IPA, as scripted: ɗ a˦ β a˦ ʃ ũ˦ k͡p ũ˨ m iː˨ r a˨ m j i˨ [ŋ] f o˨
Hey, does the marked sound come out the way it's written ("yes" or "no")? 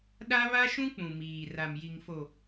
yes